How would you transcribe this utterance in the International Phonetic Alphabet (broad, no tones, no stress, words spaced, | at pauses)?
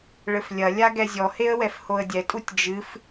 ɭɘflʲɐlʲa ɡɛzʲɔheə̯ wɛfhoə̯dʲɛtʼutʲ d͡ʒɨf